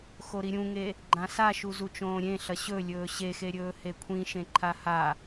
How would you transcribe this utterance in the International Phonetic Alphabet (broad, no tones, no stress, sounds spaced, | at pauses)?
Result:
x o ɾ i ɾʲ ũ ŋ e | ɡ͡ǃ ã s a ʃ u z u t͡ʃ õː ɾʲ ẽ ɬ ɐ ɕ ɵ lʲ ɵː ɕ e x e ɾʲ ɵː h e kʷʰ ĩ ʃ ẽ ǃʰ a h a